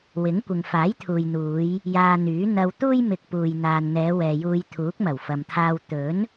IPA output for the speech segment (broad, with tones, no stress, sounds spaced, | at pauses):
w ɪ˨˥ ŋ kʷ ɪ˨ ŋ f aː˨˥ j t̪ʰ uː˨ j n̪ uː˨˧ j | j aː˧ n̪ yː˨˥ n̪ ɐ˧ w t̪ uː˥ j m ɪ˨ k̚ p uː˨ j n̪ aː˨ n n̪ ɛː˨˧ w ɛː˨ j uː˧ j t̪ʰ uː˨˥ k̚ m ɐ˨˩ w f ɐ˨ m t̪ʰ aː˧ w t̪ ɵ˨˥ n